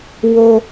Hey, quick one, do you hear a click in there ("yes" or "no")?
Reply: no